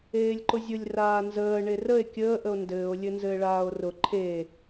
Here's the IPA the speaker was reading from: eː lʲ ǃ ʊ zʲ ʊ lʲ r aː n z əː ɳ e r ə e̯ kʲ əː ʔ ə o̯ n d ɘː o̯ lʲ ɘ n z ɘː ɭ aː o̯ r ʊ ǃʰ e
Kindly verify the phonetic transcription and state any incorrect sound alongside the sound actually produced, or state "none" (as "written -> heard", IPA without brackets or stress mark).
none